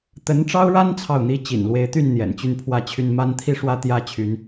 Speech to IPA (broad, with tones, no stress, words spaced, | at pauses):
t̪ə˧˥nʈ͡ʂɑ˥ʊ̯ɻa˥n t͡sʰɑ˥˩ʊ̯n̪i˥ t͡ɕḭ˨˩nlwe˧˥ɪ̯t̪y˥˩n n̪jɛ̰˨˩nt͡ɕy˥˧npʰwä˥˧t͡ɕʰy˥˧n ma˥˧nt̪ʰi˥˧ ʂwä˥˧t̪jä˥˩ t͡ɕʰy˧˥n